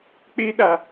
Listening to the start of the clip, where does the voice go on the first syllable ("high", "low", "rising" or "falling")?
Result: high